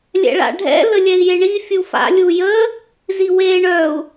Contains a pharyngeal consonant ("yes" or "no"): no